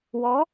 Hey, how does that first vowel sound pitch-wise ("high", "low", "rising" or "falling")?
rising